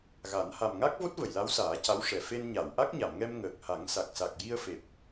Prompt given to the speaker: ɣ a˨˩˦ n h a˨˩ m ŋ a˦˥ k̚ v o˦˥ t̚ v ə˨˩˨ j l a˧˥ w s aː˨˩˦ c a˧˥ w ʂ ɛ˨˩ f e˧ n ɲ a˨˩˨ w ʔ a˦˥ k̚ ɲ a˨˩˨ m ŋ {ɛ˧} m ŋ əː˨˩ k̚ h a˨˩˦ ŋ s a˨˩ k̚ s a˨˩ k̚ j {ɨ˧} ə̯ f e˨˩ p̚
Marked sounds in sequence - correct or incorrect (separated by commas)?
correct, incorrect